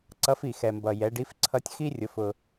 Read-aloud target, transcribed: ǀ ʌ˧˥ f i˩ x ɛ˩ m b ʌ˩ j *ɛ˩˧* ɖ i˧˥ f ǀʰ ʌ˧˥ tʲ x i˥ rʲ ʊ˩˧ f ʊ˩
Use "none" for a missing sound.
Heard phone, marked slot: ɛ˩˧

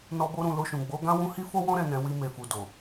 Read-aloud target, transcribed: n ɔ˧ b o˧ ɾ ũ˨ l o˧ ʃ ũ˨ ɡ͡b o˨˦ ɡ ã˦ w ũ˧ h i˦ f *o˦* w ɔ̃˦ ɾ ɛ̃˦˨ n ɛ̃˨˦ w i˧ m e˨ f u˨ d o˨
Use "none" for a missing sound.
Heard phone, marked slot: o˦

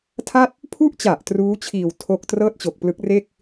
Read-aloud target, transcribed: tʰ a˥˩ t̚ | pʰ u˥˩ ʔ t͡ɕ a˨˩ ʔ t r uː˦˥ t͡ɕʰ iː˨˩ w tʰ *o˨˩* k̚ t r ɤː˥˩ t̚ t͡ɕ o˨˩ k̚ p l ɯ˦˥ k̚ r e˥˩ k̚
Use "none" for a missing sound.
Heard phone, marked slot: o˥˩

